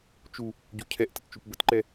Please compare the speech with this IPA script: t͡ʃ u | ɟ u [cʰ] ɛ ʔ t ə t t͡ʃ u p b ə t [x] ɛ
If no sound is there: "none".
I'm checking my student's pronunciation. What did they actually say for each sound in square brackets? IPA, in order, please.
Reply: cʰ, ǃ

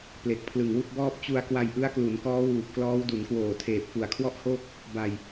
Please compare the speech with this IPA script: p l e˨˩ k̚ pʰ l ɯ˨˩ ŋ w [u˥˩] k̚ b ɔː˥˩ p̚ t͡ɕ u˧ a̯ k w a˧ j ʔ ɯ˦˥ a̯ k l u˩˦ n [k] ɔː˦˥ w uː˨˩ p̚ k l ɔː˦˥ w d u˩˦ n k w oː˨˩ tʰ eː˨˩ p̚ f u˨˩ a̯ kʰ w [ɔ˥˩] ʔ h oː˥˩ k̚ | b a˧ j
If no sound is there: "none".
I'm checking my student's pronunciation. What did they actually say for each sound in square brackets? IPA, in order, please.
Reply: u˥˩, k, ɔ˥˩

